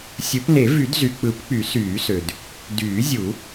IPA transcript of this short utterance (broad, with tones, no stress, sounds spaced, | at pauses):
sʲ ɯ˨˩˦ p n e˨˩˦ v y˨˩˦ d z y˩ k͡p ɯ˨˩˦ p k͡p y˨˩˦ s yː˨˩˦ s ø˩ d | d yː˨˩˦ zʲ u˨˩˦